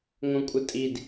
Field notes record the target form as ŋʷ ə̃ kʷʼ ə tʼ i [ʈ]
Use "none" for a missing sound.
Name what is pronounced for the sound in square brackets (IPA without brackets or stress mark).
d